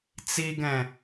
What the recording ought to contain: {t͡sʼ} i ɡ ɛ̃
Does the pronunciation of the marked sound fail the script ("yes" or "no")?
yes